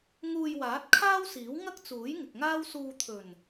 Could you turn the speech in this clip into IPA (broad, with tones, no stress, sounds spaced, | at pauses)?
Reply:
ŋ uː˧ j w aː˨˥ t̚ kʰ aː˥ w s iː˨˥ w ŋ ɐ˥ k̚ t͡s uː˨˥ j ŋ ɪ˨ k̚ ŋ aː˥ w s uː˧ t̪ʰ ɵ˨˩ n